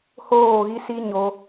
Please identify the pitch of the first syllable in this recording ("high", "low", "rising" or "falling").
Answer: falling